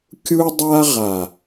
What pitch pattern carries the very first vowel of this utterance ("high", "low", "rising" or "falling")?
high